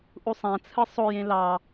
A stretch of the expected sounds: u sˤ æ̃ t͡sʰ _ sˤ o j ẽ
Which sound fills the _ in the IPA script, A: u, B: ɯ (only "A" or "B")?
B